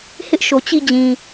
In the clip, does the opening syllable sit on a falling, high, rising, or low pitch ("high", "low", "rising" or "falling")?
high